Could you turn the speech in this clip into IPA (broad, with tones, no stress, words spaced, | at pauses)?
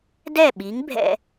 dɛ˥˩ɓi˩˥ŋ bʱɛ̰˥